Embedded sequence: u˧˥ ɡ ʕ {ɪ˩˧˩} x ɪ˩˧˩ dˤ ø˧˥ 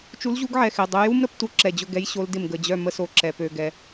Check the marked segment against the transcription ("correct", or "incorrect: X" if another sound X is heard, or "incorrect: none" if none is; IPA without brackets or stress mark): incorrect: ɛ˩˧˩